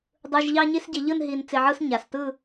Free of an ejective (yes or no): yes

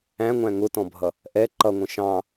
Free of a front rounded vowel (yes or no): yes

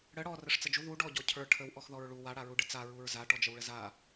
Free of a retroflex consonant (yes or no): no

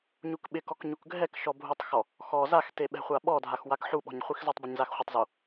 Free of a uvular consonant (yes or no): no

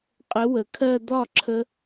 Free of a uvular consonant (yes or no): no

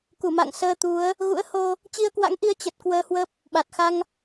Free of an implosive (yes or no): no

